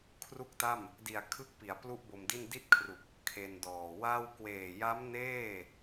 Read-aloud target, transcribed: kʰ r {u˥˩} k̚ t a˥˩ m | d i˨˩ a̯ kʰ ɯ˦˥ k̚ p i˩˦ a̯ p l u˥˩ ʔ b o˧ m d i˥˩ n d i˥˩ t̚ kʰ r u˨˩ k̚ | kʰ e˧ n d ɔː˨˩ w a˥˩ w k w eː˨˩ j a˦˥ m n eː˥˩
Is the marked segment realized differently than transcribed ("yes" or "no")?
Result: no